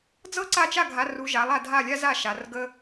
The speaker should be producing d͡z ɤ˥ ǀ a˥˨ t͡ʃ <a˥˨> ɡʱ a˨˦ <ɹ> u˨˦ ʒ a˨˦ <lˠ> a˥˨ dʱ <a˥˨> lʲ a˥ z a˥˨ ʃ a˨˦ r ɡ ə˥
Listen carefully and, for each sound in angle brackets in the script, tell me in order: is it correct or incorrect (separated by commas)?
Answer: correct, incorrect, correct, correct